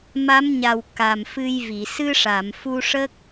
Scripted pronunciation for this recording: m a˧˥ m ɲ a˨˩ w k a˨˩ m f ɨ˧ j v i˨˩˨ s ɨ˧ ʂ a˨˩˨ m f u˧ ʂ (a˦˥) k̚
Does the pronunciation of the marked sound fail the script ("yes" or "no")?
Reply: yes